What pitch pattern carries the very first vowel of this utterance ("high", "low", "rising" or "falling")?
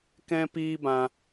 high